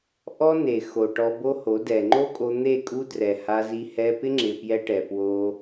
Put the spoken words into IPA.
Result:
ʔ ɔ˦ n e˨ x o˨ ʈ ɔ˧ b o˦ h o˨˦ d ɛ˨ ŋ͡ǃ o˦ kʼ o˧ n̪ e˦˨ kʼ u˦ d r ɛ˨ h a˧ z i˧ h ɛ˧ p ɪ˦ ŋ͡ǁ ɪ˨ p j ɛ˦ ʈ ɛ˨ p w o˧

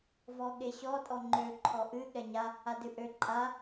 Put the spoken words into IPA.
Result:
v ɔ ɠ e ɕ ɔ tʼ ɔ ŋ͡ǃ ø ǃʰ ɔ ʔ ɨ ɠ ɛ ɲ a | a d ɨ ʔ ø ǃʼ a

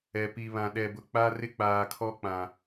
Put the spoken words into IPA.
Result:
ɛ˨ p i˨ β ã˨ ɗ ɛ˨ b ʊ˨ k͡p a˦ r ɪ˦ k͡p aː˨ kʰ ɔ˦ k͡p ã˨

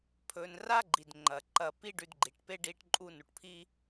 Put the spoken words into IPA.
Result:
pʰ ɵ˨ n r a˥ ɡ͡ǃ i˩ d ŋ͡ǃ ɐ˩ ǃ ɐ˨ p i˥ ɖ ʉ˨ d ɡ͡ǃ i˩ ʈ p e˥ ɖ i˦ ʈ ǃʼ u˦ n u˩ ʈ pʰ i˥

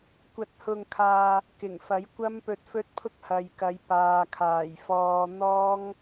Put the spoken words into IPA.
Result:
kʷ ɐ˧ t̚ h ʊ˧ ŋ kʰ aː˧ | k ɪ˨˩ ŋ f ɐ˨˥ j kʷ ɐ˥ m p ɵ˧ t̚ f ɵ˥ t̚ pʰ ʊ˥ k̚ h ɐ˨ j k ɐ˨˧ j p aː˨ kʰ aː˨˩ j f ɔː˧ n̪ ɔː˥ ŋ

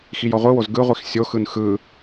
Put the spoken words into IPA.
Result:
x i j ɔ ʁʷ ɯ w o z ɡ ɯ ʁʷ i x sʲ o x ɯ n x ɯ

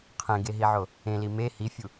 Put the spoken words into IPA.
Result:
qʰ ẽ ɡ e ɦ i ʕ o | ẽ l i m e h i fʲ u

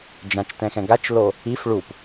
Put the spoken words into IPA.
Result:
d͡ʒ ã t͡ʃ t ɛ̃ x ɛ̃ ɡ a t͡ʃ l o | i f ɭ u p

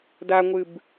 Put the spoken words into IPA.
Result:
d a ŋʷ ɨ b

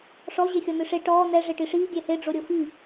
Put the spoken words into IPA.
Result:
ʂ ɔ ʑ e xʲ ɔ n̪ ɨ ʂ e ʈ ɔː n̪ ɛ ʐ e ʈ i ʂ iː ɡʲ ɛ h e ɖ͡ʐ o ɾʲ o f i

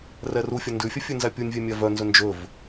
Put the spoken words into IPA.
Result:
r ɛ r u fʲ œ n d ʉ fʲ ɛ fʲ ʉ n z æ pʲ u nʲ vʲ ɛ mʲ æ v œ n z ɵ n d͡ʒ ɵ v

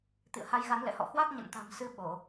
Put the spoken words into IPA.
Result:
t̪ ḭ˧˨ ə̯ h a˨˦ j ɣ a˨˦ n l ɛ̰˧˨ h ɔ̰˧˨ h w a˦˥ k̚ ɲ ə̰˧˨ n t̪ a̤˨˩ m s ɨ˧ ɓ o˧˩˨

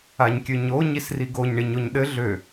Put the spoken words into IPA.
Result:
a ɲ kʲ ø ɲ o ɲ i s r i ɡ o ɲ ɳ i ɲ o ɲ ɗ ɘ ɮ ø

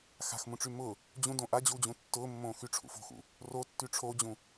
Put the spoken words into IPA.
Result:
x a̤ x m ũ ʈ͡ʂ y m ʊ | d͡ʑ ũ d õ ʔ a d͡ʑ u d͡ʑ ũ tː ʊː mː õː x y ʈ͡ʂʰ ṵ f o̤ x ṵ | r o tː y ʈ͡ʂʰ o d͡ʑ ũ

